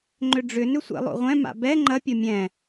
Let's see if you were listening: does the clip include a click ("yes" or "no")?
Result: yes